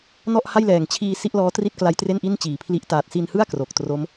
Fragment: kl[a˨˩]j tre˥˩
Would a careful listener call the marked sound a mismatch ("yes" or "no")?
yes